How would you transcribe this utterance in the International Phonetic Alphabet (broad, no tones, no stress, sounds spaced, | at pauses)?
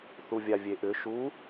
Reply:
θ u vʲ a vʲ e ʔ ʏ ʃ u